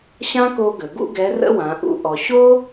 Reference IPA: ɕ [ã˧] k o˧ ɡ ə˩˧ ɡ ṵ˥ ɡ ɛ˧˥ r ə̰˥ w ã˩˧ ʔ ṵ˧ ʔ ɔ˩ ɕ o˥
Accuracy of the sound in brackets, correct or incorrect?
incorrect